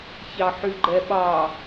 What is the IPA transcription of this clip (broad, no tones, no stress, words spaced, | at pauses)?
çɑħyɡ͡ǃɛɓɑ